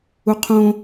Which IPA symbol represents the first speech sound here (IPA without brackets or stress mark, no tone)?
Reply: u